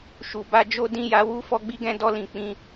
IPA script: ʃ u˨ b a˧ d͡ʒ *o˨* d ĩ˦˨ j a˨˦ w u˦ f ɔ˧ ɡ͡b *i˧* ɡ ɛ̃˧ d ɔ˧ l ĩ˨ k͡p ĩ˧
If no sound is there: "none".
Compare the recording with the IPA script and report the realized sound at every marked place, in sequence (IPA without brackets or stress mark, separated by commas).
o˦, i˧